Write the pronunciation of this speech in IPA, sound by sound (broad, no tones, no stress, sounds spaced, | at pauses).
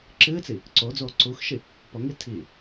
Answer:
ǁ ɨː t͡s i | ǀ o d͡z oː ǀ u x ʃ i | p ɔ ŋ i tʰ i